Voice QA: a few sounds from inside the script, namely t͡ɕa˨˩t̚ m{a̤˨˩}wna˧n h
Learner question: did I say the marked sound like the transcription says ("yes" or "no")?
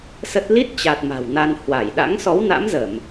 yes